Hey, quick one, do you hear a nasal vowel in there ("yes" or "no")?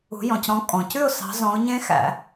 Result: yes